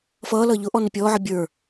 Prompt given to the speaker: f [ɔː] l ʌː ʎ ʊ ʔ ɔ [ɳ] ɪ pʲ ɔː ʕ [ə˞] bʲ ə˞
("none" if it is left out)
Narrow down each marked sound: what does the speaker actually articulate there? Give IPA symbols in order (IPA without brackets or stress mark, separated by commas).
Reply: ʌː, n, ʌ